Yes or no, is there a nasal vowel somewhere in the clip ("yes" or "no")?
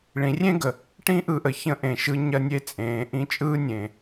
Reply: yes